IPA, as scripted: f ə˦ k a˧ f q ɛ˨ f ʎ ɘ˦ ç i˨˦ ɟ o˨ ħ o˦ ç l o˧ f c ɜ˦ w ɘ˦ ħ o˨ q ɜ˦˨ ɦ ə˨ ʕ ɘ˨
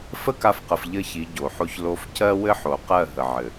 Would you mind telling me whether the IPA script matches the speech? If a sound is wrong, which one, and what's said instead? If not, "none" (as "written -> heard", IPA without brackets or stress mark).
ɛ˨ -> ə˨